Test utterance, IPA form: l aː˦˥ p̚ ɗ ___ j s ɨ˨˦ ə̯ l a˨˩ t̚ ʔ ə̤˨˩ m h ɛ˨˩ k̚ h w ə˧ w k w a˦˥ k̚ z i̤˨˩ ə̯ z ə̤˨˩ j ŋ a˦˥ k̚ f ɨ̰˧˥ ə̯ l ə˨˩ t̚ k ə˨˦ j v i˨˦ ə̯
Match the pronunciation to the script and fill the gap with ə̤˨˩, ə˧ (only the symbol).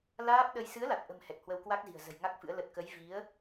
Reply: ə˧